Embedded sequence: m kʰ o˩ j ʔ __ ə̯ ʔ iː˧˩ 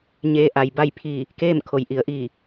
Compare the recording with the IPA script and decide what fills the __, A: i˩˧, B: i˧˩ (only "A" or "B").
A